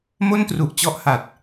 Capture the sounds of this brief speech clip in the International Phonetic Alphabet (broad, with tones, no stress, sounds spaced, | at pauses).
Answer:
m o˥˩ n t r u˨˩ ʔ t͡ɕ ɔ˦˥ ʔ h a˨˩ t̚